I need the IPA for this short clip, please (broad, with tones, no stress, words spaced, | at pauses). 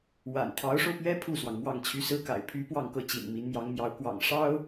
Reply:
wa̰˨˩n t̪ʰɑ˧˥ʊ̯ʂo˧ʊ̯pɥɛ˥ pʰu˥˩swɑ˩ŋ mwɑ˥˩ŋt͡ɕʰy˥ sɹ̩˥ka̰˨˩ɪ̯ pʰy˧˥ pwɑ˥˧ŋkɤ˥˩ t͡ɕḭ˨˩nmi˧˥n mjɑ˧˥ŋmjɑ˧˥ʊ̯ kwɑ̰˨˩ŋ ʂɑ˥ʊ̯